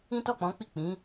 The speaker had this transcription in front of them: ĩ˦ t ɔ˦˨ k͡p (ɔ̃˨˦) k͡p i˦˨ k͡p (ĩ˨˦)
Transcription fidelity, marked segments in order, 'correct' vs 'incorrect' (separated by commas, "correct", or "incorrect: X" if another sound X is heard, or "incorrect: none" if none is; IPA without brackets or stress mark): correct, correct